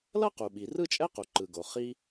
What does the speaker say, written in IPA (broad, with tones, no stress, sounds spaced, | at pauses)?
l ʌ˥ q u˩ ɓ i˩ r ɯ˥ t͡ʃʼ ɛ˥ q u˩ ǃ ɯ˩ ɡ o˩ χ i˥